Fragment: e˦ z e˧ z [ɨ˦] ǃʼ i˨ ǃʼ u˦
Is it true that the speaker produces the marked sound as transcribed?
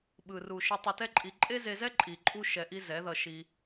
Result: no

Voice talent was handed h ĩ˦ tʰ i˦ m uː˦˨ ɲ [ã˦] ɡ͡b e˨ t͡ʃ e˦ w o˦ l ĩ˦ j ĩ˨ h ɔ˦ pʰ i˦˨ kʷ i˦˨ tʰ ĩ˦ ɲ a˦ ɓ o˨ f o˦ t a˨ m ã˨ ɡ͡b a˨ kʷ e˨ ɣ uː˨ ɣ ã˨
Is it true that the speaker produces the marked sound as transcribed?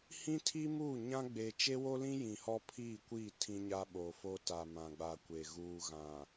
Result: yes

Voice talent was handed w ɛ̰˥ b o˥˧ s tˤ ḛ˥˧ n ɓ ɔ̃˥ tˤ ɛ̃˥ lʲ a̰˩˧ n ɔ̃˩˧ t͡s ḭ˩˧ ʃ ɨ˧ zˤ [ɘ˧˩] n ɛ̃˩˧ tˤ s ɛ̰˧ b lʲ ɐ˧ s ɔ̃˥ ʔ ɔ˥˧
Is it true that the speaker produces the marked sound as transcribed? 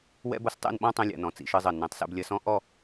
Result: yes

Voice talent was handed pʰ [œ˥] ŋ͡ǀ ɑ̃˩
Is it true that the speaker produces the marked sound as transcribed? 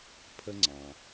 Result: no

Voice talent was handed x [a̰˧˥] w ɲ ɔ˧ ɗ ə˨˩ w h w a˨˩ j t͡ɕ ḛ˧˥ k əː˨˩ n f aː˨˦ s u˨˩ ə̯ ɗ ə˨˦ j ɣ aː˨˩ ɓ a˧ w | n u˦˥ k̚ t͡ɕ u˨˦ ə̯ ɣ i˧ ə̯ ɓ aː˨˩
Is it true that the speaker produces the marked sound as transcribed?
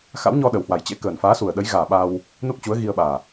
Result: yes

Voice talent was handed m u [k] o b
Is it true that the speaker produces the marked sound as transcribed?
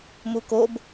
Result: yes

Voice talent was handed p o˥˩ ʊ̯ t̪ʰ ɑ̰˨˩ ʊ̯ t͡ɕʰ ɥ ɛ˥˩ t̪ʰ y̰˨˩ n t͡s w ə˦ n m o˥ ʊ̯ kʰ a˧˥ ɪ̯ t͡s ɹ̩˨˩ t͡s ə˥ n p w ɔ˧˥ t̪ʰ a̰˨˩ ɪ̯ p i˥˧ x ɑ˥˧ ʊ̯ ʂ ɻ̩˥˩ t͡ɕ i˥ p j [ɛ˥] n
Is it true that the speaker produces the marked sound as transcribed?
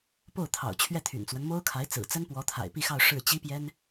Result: yes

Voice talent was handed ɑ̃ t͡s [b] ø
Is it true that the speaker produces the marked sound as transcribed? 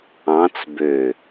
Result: yes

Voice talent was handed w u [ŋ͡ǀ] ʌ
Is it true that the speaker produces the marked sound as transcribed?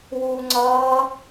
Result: yes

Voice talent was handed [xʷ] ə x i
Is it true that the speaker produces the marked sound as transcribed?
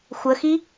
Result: yes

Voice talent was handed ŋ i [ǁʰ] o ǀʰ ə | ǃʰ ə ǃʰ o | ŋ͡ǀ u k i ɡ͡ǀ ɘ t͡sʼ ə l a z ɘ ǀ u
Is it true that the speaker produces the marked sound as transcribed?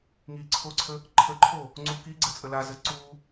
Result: no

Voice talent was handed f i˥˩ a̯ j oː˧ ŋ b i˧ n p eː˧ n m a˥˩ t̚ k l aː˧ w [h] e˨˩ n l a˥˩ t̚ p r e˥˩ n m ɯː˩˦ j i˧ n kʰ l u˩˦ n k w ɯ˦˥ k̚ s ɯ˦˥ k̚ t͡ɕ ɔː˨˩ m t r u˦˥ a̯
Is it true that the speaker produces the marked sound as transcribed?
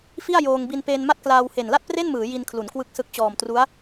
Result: yes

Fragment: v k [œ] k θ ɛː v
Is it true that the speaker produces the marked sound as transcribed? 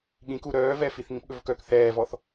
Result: yes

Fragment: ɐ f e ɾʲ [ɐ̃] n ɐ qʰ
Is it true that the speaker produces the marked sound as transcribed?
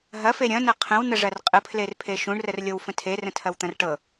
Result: yes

